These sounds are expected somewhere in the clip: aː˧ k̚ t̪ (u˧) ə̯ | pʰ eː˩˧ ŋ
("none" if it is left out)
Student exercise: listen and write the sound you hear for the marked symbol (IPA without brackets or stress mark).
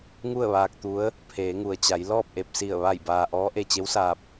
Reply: u˧˥